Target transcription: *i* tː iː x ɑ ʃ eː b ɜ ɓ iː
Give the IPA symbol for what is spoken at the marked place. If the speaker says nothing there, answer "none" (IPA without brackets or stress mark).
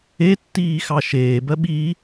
e